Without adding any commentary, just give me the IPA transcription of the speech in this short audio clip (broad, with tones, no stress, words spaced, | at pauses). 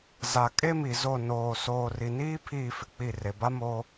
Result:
za˨ kʼe˦mi˨zo˦˨ noː˨ soː˨ri˨niː˦ pʰiː˦˨fɪ˨k͡pi˦˨ re˨ba˦moː˦